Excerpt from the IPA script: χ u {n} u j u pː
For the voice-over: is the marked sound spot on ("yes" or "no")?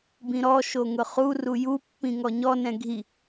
no